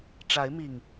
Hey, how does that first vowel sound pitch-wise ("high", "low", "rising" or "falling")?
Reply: rising